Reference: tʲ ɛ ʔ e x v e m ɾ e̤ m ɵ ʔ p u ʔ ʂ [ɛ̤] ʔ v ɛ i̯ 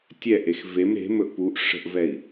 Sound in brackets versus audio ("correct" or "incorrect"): incorrect